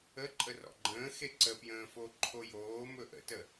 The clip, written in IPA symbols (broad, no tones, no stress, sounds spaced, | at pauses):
ə ǃʼ ə r ɔ̰ ɡ͡ǃ ə̃ː x e ǀ ə p j ə̃ː f o ǃʰ o j oː m ɵ ʔ ə̰ t ə